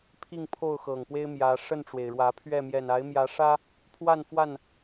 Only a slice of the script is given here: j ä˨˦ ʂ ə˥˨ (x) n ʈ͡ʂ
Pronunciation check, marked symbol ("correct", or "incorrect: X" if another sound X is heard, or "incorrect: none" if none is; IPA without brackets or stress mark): incorrect: none